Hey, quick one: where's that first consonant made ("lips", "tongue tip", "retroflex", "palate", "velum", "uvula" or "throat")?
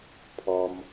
lips